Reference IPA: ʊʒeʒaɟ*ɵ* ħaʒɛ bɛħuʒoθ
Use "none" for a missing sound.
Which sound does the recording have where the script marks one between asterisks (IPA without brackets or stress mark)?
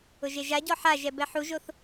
ɔ